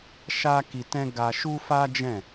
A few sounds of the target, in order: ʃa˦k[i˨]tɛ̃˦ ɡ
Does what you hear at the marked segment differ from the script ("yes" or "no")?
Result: yes